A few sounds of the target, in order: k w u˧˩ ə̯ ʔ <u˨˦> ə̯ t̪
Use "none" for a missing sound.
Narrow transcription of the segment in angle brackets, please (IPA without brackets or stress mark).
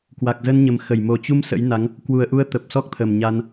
u˨˦